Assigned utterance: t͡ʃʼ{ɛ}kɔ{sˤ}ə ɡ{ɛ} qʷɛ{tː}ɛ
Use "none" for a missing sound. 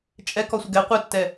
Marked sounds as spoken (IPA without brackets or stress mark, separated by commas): ɛ, sʷ, ɛ, tː